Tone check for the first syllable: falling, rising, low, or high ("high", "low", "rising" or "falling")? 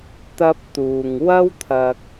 high